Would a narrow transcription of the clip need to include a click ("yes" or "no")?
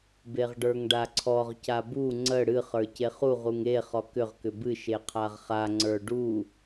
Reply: yes